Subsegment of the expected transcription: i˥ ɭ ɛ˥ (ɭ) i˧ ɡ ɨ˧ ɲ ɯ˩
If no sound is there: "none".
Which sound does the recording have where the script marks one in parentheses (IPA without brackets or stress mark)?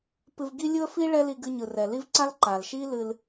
l